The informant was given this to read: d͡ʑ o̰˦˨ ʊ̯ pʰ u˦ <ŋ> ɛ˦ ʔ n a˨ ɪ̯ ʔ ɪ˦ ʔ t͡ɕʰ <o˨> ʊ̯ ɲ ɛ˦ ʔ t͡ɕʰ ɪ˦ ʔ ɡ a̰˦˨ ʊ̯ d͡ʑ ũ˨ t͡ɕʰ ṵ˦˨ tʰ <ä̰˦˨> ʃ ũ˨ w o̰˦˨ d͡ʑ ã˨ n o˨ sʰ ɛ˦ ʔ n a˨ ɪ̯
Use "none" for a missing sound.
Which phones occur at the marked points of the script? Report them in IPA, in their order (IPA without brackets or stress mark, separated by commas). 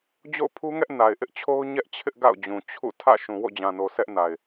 ŋ, o˦, ä̰˦˨